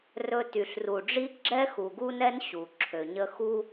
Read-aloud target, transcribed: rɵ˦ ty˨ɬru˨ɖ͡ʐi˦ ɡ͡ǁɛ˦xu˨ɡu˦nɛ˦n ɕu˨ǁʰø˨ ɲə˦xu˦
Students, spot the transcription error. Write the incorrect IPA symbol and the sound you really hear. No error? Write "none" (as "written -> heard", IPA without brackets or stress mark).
none